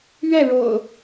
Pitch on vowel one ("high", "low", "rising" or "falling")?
falling